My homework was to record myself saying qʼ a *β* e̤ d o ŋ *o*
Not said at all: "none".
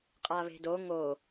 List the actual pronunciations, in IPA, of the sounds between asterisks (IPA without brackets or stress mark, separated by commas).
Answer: β, o